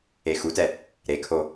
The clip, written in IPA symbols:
e x u t ɛ | ɾ e kʰ o

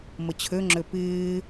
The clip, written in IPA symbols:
m ə t͡ɕʰ ø ŋ͡ǁ ø p ɪː

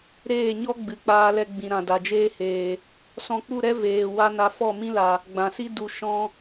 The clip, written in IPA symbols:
ɾ eː˦˨ ɲ ɔ˦ ɡ͡b ɨ˨˦ k͡p aː˧ l ɛ˧ ɡ͡b ĩ˨ ɾ ã˨ d a˨ d͡ʒ eː˦ h eː˨ | s ɔ̃˧ k͡p u˦˨ ɾ ɛ˦ v eː˨ w a˦ n a˧ f ɔ˦˨ m ĩ˦ l a˨ | ɡ͡b ã˨ s i˦ d u˨ ʃ ɔ̃˧

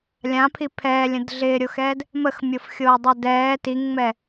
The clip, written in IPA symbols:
lʲ ã pʰ i pʰ ɛː lʲ ə̃ d ɮ ɪː ɾʲ o x ɛː d | m ə x mʲ o f xʲ oː dˤ ɛ d ɛː t i ŋ ŋ͡m ɛ

